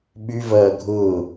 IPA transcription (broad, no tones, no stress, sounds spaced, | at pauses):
ɓ y v ɐː ɡʱ ʊː